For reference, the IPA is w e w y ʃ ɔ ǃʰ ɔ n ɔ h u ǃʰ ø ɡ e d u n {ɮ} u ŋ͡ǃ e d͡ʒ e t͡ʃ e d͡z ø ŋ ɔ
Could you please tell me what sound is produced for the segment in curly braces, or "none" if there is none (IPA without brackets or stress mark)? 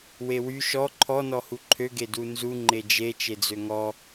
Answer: z